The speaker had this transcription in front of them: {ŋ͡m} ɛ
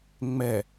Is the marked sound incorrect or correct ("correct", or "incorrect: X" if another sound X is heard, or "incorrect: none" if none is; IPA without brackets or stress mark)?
correct